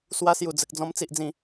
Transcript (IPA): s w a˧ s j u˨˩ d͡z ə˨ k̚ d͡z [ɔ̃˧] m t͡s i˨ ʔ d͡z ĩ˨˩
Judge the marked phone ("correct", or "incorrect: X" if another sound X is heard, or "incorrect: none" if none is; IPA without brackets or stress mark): correct